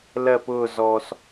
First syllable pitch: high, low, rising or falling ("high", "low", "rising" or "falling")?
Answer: falling